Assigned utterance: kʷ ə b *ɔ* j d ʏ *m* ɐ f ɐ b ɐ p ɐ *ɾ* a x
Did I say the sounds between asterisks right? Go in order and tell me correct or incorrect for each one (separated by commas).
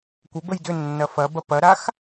incorrect, incorrect, correct